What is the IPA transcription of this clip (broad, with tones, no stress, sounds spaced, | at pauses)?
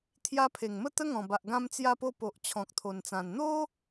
t̪ʰ j a˧ pʰ e˨˩ ŋ m ə˥˧ t̪ ə˦ ŋ ɔ̃˨˩ b a˨ ʔ ɡ ã˧ m t͡s j a˧ p o˧ p o˨ ʔ t͡ɕʰ ɔ̃˨ k̚ t̪ʰ o˨˩ n t͡s ã˨˩ n n̪ o˦